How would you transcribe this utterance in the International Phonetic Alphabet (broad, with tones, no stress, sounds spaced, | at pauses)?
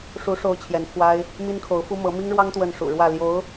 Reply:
ʂ u˧˥ ʂ o˧˥ ʊ̯ t͡ɕʰ j ɛ˧˥ n pʰ w a˥ ɪ̯ | m i˥ n kʰ o˧˥ ʊ̯ f u˥ m ɤ˧˥ m i˥ ŋ ɻ w ɑ˥ ŋ t̪ w ə˥˩ n ʂ ṵ˨˩ ɻ w ä˥˩ l j o˧˥ ʊ̯